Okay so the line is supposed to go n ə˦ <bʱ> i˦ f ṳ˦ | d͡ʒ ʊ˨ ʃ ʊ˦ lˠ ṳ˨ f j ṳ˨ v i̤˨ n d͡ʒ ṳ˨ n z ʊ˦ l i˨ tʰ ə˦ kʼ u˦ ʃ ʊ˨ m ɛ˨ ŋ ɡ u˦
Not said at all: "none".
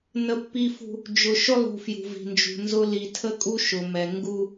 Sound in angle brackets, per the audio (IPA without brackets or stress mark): pː